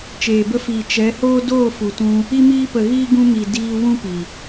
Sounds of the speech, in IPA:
t͡ʃeː˨bə˧fiː˨ t͡ʃɛ˨˦hoː˦ doː˦˨fu˨tũ˧ | i˧miː˧pə˨ɣiː˧ ɡũ˧mi˨ diː˧ wũ˦pi˨

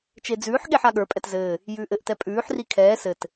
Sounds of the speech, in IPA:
t͡ʃed͡zʉːħɠeħ aɠə˞pʼɛt zɘː | jʉːʔɘʔtɛ pʼʉːħri kʰɛː sɘt

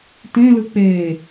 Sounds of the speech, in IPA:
tẽlɯ k͡pe

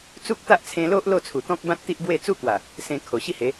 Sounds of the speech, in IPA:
t͡su˦k̚t̪a˦ʔt͡sʰẽ˧lo˦ʔ lo˥˧t͡sʰu˨˩t̪ɔ̃˦k̚bã˦t̚ t̪i˦ʔbwe˥˧ t͡su˦kwa˨˩ | sẽ˧kʰo˨˩ɕi˥˧he˨˦

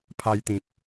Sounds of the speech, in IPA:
pʰa˧jt̪ĩ˨p̚

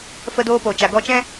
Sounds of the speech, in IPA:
fə˧doː˧po˨ t͡ʃa˨ɡɔ˧t͡ʃɛ̃˦

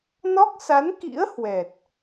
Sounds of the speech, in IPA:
nɔ˦˥k̚sa˨˦nkḭ˧˥ə̯ hwɛ˨˩t̚

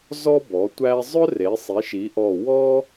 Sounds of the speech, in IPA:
zɔ˥bɔ˩˥ tʷæ˥ zˤœ˥ re˩˥sˤi˩˥ʃi˩˥ʔɔ˧˩ wɔ˥

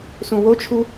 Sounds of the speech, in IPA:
sũwot͡ʃʰu

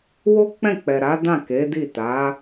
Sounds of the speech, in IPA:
wo˦k͡pɛ̃˦˨k͡pɛ˨ɾa˨˦ dã˦˨ke˨˦di˦˨ ta˨˦

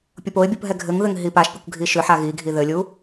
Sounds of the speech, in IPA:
pʲopoɪ̯bʲup ɦɛɡʱɘŋðɘŋ ɦipaʃpʲʊkʷ ɡʱiʃʏħa ɣiɡʱi ðɘlʲu

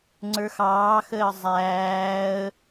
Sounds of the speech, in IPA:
ŋ͡ǀə˞xɑːxəː zˤæːə̯

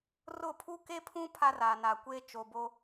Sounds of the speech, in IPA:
rʊ˦˨ pʰu˦ke˦pʰũ˦ pʰa˦raː˨naː˨kʷeː˦ t͡ʃo˨bo˦

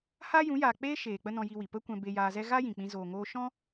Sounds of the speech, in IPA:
haː˦jũ˨˦jaː˨ k͡peː˦ ʃeː˨ k͡pə˦nɔ̃˧ji˧wi˨ pə˦kʷɛ̃˧ be˧jaː˧zɛ˦ ɣa˦jĩ˨k͡pĩ˧ zoː˨ŋoː˧ʃɔ̃˦

